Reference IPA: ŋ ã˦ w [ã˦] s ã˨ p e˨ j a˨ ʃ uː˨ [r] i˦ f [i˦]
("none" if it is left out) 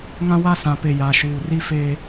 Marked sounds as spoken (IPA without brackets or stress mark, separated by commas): a˦, r, e˦